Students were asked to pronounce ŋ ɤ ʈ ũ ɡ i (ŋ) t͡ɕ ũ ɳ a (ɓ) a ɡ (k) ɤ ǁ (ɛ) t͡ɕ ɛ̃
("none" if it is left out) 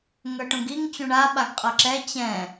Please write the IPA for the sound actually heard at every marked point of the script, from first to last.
ŋ, ɓ, qʼ, ɛ

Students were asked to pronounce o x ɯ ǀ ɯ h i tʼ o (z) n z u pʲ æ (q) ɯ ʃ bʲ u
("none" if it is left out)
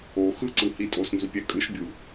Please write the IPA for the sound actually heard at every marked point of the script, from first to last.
s, kʼ

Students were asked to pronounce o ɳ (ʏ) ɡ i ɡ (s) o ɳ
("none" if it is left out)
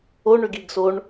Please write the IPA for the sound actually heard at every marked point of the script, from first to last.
ʏ, s

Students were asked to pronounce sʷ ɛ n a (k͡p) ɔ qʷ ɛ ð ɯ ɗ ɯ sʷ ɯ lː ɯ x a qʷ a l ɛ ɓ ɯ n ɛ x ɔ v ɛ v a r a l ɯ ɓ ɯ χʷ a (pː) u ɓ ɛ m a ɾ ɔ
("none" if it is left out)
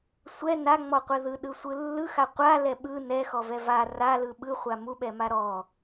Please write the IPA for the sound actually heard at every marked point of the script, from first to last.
ŋ͡m, m

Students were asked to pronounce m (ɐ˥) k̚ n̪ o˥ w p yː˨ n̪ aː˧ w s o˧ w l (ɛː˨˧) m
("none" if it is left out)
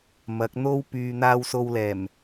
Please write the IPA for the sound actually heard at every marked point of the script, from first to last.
ɐ˨˥, ɛː˨˩

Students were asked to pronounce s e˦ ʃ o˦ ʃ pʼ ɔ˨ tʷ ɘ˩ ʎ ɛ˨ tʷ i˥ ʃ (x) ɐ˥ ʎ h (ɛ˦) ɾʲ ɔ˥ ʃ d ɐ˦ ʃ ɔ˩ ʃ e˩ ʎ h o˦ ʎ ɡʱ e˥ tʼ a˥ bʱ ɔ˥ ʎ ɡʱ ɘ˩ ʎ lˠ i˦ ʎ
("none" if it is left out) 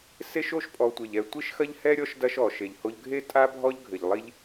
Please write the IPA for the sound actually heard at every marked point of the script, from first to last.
x, ɛ˥

